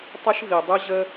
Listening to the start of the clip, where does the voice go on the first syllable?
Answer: high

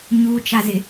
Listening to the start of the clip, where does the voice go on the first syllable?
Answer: low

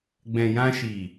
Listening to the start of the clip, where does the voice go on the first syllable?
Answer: low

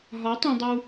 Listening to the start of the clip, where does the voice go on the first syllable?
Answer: rising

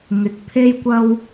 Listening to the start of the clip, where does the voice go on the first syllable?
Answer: low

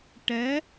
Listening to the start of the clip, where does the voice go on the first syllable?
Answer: rising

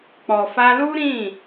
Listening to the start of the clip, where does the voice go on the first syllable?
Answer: low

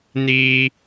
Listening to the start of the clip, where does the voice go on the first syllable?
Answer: low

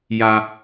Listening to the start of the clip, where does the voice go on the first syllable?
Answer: high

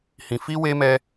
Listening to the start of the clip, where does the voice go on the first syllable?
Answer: low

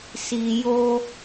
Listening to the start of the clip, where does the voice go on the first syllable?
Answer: low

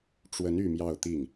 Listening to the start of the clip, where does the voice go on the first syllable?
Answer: rising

